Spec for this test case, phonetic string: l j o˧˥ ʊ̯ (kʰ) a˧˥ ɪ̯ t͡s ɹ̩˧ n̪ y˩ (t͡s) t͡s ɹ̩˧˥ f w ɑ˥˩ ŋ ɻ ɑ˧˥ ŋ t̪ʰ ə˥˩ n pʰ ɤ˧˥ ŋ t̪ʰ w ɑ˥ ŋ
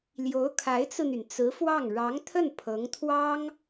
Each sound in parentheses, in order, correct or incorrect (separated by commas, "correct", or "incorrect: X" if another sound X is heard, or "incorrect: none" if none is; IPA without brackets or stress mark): correct, incorrect: n